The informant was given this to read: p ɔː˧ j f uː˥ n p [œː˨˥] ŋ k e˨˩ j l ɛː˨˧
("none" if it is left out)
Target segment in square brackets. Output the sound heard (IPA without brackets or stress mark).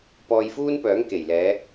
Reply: œː˨˥